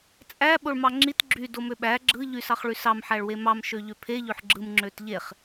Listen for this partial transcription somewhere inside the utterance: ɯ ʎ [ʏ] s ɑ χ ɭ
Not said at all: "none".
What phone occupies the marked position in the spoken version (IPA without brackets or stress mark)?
y